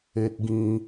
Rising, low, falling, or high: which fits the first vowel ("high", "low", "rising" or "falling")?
high